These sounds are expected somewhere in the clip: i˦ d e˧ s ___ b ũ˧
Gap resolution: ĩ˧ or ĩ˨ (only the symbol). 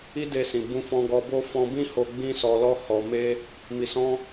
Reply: ĩ˨